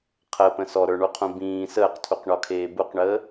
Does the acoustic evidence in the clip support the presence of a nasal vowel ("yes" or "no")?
yes